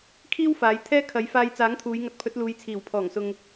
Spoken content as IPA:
kʰ iː˥ w f aː˨˧ j t̪ʰ ɛː˥ kʰ ɐ˨˥ j f aː˧ j t͡s aː˨˥ ŋ t̪ʰ uː˨˧ j ŋ ɐ˨˥ t̚ pʰ ɵ˨˥ t̚ l uː˨˧ j t͡sʰ iː˨˩ w pʰ ɔː˨˩ ŋ s ʊ˨ ŋ

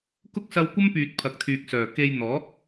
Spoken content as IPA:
k ʊ˥ k̚ s ɐ˧ w kʷ ɐ˥ m p yː˨ t̚ pʰ ɐ˨ k̚ t̪ʰ yː˨ k̚ s œː˨˩ k e˧ j n̪ ɔː˨˥ k̚

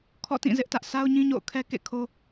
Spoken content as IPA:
kʰ ɔ̰˦˨ t ĩ˦˨ z ɪ˦ ʔ t ä˦ ʔ sʰ a˦ ʊ̯ ɲ ĩ˦ ɲ o̰˦˨ ʊ̯ kʰ ɛ˦ k ḛ˦˨ kʰ o˦

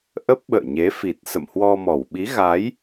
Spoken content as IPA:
ʔ ə˦˥ p̚ ɓ ə̰ː˧˨ ɲ e˨˦ f i˨˩ t̚ s ə̰˧˨ m h w ɔ˧ m ɔ˧˩ w ɓ i˨˦ ɣ a˨˦ j

